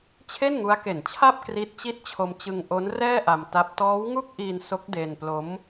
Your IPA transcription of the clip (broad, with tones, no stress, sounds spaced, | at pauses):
t͡ɕʰ e˥˩ n ŋ u˦˥ a̯ k e˨˩ n t͡ɕʰ a˥˩ p̚ k r i˦˥ t̚ t͡ɕ i˥˩ t̚ t͡ɕʰ o˧ m t͡ɕ ɯ˧ ŋ ʔ o˦˥ n r ɛː˥˩ ʔ a˧ m t a˦˥ p̚ t ɔː˦˥ w ŋ u˥˩ k̚ ʔ i˧ n s o˦˥ k̚ d e˧ n p l o˦˥ m